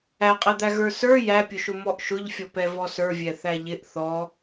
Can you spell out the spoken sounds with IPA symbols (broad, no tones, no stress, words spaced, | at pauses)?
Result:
æqʼɛd̪æ ɣə˞sə˞ jæpʲʊʃʊ mɔʔʃʊʎfʲɔpɛ vɔsə˞vʲɛθæ ʎɪʔ θɔ